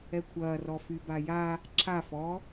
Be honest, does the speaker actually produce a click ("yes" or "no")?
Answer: yes